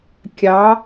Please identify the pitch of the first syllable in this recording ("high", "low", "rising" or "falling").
rising